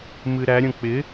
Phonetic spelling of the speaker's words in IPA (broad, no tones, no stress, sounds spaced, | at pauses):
m ɨ ɾ æ ɾʲ ə̃ k͡p ɪ